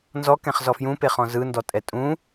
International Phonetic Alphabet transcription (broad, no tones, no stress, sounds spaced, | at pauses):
n z ɔ k ɛ̃ χ z ɔ f j ũ p e χ ɔ̃ z ɯ n d ɔ tʼ ɛ tʼ ũ